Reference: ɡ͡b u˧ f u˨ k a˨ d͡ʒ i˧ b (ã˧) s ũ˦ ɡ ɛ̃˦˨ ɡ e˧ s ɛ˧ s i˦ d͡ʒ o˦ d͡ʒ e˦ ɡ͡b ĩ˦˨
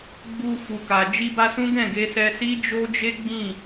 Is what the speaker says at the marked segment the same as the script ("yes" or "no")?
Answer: no